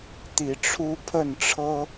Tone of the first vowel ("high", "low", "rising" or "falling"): rising